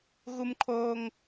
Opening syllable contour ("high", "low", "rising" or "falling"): high